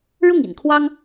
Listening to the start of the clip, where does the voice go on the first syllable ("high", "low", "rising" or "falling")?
falling